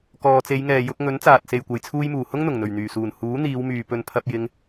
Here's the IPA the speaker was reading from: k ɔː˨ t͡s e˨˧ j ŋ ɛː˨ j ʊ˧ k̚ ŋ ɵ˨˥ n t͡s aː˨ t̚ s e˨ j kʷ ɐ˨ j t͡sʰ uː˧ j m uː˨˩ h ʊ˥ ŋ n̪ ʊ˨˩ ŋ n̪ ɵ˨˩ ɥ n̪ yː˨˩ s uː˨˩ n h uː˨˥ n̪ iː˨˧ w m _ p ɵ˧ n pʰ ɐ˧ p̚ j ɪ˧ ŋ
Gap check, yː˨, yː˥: yː˨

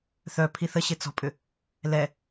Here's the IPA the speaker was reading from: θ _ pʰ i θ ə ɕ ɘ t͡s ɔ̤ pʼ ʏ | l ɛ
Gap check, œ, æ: œ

